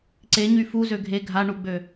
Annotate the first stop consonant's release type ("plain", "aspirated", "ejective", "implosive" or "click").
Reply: click